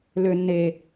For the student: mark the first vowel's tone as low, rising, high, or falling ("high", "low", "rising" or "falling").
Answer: low